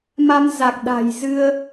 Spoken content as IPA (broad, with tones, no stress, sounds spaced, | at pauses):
m a˧ m z a˨˩ k̚ ɗ a̤˨˩ j z ɨ˧ ə̯